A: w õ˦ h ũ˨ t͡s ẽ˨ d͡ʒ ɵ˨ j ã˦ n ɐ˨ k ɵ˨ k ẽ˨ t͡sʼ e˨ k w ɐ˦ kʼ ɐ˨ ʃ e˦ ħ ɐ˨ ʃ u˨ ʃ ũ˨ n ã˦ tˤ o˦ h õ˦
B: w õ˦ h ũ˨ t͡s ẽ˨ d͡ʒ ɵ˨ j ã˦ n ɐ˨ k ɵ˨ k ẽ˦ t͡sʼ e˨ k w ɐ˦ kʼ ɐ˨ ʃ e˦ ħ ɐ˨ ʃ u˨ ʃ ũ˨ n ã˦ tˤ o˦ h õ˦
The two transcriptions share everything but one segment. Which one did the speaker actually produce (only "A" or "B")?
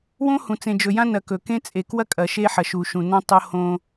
B